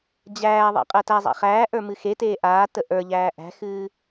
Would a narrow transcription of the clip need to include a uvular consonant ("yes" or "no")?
yes